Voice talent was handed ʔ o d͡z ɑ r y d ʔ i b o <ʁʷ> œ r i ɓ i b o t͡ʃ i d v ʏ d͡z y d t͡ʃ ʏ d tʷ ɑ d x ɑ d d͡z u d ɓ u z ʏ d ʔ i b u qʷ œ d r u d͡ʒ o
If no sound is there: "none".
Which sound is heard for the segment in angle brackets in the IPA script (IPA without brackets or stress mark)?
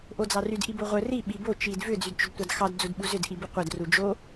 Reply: ʁʷ